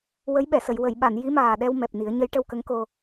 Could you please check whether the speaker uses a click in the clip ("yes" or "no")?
no